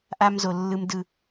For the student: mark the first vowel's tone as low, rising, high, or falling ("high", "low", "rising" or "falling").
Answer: high